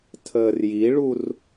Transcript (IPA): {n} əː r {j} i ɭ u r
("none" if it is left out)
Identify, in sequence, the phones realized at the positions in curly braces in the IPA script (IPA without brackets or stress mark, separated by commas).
tʰ, j